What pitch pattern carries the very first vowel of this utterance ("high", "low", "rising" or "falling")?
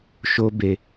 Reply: high